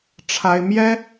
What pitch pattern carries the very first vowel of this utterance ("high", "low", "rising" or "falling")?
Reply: high